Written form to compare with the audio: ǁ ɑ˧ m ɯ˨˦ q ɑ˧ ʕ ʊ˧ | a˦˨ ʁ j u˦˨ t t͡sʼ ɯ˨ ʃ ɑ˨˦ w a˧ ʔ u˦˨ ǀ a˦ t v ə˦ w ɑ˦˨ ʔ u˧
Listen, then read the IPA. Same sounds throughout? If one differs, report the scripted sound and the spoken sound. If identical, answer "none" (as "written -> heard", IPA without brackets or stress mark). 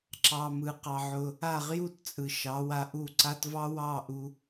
ə˦ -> ɑ˦